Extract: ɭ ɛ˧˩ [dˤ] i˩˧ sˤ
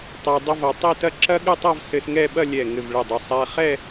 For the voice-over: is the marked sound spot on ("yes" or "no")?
yes